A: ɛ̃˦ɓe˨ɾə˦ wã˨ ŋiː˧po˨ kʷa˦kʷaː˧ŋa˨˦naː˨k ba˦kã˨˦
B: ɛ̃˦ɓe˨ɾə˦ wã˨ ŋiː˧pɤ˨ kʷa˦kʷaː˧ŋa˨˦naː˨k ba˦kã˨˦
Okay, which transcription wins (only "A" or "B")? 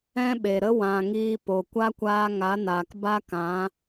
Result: A